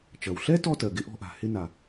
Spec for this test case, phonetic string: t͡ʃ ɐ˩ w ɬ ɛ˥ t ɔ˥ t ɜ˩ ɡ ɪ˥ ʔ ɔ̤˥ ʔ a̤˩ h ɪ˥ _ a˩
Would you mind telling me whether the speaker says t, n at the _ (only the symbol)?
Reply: n